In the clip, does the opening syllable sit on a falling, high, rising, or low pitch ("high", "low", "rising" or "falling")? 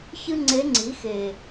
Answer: high